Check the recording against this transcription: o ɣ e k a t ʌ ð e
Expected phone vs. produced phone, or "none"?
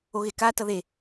none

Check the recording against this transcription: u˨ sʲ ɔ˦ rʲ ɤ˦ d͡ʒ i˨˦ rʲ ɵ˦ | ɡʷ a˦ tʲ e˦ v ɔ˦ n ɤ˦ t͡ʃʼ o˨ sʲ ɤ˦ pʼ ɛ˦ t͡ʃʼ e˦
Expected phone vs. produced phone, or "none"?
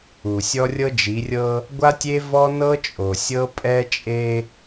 ɵ˦ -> ɤ˦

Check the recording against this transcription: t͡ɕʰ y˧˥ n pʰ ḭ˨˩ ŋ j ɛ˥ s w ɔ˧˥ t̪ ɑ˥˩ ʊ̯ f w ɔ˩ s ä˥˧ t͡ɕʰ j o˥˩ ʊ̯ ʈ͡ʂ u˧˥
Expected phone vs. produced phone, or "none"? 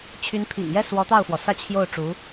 none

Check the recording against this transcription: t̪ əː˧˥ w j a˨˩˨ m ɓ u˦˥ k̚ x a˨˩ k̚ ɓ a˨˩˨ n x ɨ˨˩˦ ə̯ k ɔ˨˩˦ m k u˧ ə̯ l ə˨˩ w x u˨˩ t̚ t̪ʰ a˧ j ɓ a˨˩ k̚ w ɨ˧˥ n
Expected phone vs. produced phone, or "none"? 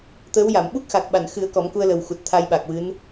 none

